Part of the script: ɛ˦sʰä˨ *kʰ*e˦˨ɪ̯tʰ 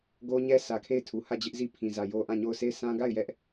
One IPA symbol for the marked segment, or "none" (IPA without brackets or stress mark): kʰ